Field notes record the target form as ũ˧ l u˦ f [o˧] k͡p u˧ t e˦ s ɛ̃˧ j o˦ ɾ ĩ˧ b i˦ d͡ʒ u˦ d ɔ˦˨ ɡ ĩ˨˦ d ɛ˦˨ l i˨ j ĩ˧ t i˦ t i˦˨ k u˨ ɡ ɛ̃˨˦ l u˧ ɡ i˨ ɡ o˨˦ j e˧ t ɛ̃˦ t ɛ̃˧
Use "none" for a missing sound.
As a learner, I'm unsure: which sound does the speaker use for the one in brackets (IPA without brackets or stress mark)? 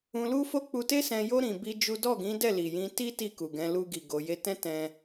o˦